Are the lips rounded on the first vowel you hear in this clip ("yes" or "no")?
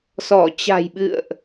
yes